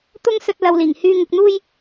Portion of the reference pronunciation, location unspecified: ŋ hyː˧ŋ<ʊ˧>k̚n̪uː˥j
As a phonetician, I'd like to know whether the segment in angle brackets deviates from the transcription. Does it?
yes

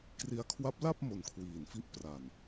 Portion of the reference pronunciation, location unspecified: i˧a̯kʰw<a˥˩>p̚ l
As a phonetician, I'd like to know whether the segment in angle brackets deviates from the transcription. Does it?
yes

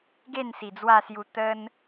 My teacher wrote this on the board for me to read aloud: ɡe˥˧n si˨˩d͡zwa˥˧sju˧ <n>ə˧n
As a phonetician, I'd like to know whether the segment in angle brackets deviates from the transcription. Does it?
yes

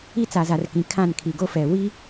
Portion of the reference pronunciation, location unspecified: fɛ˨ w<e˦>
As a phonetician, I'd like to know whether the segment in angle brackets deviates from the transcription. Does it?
yes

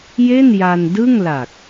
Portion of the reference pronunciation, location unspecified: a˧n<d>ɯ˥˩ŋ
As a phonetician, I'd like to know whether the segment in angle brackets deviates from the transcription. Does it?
no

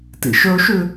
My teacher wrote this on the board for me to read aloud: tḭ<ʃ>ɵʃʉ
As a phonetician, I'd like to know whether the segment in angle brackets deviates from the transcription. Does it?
no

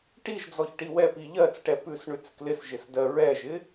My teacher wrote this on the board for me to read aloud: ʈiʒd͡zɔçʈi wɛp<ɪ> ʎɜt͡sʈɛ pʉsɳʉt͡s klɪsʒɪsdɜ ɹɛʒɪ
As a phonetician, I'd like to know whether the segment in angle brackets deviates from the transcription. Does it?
yes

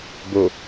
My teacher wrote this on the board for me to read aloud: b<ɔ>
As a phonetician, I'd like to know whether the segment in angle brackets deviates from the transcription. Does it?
yes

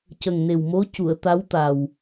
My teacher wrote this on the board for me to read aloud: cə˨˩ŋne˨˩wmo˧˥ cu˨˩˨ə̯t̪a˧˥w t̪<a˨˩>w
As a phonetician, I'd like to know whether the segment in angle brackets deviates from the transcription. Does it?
no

